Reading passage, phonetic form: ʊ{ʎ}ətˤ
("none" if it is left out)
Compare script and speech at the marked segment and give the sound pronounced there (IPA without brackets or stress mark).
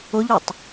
ʎ